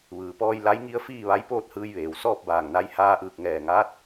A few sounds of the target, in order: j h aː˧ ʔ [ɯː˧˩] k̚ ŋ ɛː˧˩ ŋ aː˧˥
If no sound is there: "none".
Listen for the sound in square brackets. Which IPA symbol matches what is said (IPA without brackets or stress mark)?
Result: ɯː˧˩